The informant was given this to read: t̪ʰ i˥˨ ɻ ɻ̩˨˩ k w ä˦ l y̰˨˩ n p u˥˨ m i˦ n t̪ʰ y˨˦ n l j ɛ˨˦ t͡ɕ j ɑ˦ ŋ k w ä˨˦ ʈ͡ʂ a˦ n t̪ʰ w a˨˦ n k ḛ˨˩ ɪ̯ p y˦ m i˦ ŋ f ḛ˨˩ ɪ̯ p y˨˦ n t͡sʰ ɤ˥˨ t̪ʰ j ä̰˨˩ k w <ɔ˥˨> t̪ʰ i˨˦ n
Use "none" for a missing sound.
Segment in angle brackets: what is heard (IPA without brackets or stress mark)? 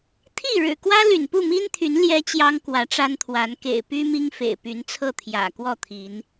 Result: ɔ˥˨